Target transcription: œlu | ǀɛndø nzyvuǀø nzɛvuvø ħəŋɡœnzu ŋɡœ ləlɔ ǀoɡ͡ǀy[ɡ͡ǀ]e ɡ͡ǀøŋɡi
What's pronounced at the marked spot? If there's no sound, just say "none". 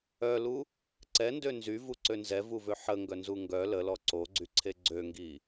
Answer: ǀʰ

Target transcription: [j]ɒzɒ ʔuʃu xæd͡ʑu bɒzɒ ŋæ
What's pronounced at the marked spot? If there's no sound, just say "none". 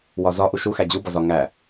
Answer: w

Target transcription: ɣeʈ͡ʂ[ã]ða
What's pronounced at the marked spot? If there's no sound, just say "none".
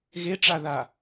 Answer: a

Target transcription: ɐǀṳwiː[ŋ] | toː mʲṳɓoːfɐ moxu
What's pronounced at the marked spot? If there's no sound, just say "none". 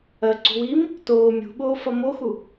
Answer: m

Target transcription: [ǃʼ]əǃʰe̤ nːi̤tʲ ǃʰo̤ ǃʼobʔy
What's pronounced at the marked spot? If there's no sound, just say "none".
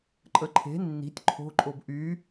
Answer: ǃʼ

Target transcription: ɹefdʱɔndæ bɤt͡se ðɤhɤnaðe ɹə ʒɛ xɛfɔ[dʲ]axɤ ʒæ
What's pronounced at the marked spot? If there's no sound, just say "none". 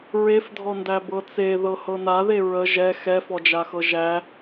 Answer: d͡ʒ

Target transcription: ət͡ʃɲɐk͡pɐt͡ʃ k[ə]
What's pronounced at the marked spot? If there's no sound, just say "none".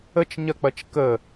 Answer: ə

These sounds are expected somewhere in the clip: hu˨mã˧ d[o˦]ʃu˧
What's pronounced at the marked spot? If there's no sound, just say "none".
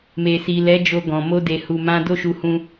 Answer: o˦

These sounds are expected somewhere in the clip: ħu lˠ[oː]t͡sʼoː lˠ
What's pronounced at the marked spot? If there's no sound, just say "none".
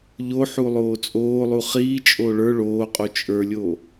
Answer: oː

